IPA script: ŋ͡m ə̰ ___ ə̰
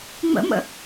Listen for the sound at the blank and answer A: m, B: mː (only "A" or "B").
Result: A